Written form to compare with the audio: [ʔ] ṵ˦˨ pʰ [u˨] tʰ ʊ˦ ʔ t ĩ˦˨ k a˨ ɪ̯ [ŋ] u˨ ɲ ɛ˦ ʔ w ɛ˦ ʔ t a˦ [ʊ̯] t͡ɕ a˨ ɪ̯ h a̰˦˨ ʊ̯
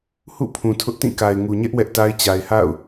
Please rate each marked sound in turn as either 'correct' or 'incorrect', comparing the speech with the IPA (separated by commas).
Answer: incorrect, incorrect, correct, incorrect